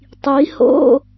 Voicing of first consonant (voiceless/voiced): voiceless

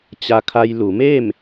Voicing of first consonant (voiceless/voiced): voiceless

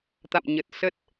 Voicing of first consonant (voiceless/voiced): voiceless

